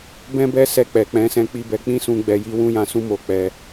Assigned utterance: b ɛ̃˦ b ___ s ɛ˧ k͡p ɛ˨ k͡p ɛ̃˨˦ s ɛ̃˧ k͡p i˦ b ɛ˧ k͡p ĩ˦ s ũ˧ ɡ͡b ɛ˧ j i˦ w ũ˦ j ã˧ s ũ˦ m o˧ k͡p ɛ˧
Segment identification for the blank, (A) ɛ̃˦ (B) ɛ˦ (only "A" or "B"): B